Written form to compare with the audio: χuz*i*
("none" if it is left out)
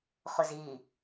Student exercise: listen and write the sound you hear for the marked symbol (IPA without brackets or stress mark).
i